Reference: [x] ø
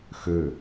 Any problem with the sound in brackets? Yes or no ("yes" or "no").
no